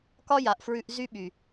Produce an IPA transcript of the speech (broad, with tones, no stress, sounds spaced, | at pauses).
k ɒ˦ j a˨ ʔ f ɹ ʉ˧ ʔ z y˦ ɓ y˨